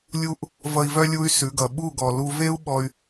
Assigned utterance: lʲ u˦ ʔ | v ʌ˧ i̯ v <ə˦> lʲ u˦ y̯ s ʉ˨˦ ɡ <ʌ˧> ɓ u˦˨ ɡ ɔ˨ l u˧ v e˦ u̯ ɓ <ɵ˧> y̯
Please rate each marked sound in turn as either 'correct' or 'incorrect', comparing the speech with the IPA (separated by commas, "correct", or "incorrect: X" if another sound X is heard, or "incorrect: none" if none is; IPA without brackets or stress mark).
incorrect: œ˦, incorrect: ʌ˨, incorrect: ɔ˧